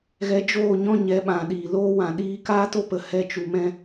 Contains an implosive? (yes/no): yes